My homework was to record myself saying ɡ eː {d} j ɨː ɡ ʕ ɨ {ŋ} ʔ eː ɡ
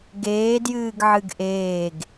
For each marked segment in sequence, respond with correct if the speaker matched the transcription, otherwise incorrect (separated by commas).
correct, incorrect